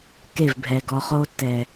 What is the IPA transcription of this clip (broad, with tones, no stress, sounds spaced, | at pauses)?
k e˦˨ v bʱ ɛ˨ ɡ ɔ˧ χ o˦ t ɛ˨